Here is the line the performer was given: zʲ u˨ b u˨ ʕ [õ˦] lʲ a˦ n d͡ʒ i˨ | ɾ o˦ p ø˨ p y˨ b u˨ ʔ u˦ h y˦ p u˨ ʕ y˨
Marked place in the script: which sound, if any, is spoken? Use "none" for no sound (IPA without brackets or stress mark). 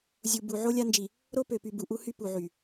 o˦